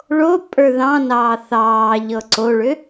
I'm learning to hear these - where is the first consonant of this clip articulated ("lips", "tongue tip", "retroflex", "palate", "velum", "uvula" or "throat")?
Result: retroflex